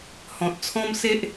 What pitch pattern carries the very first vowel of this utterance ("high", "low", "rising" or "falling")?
low